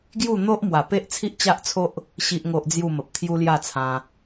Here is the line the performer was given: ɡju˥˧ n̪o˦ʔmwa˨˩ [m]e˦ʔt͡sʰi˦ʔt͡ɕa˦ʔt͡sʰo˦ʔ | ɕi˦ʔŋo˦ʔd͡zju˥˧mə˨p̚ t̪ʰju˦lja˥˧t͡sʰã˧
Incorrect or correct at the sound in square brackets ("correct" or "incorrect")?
incorrect